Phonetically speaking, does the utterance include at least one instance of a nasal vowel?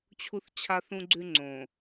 yes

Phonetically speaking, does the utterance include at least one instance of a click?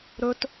no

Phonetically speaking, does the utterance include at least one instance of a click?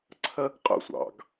yes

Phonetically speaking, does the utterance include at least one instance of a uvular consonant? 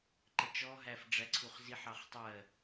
yes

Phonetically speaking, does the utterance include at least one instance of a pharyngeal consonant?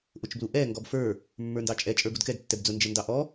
no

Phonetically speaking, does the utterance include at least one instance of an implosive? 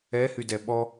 yes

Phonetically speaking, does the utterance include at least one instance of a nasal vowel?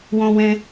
yes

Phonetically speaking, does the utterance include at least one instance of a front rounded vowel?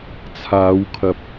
no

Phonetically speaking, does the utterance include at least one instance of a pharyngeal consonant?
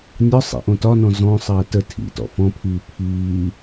no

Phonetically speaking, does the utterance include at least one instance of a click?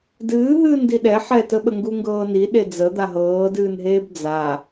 no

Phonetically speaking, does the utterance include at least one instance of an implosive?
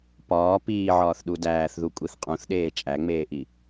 yes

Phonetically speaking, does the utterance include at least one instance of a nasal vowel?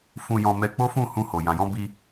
yes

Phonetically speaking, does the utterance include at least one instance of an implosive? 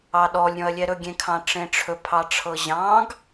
yes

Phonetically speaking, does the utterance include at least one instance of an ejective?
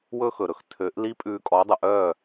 yes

